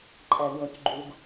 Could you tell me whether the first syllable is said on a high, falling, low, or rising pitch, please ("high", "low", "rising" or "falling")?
low